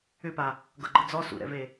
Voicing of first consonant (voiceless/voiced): voiceless